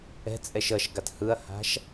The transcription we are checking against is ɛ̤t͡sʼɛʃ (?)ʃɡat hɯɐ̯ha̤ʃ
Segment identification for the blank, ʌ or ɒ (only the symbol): ʌ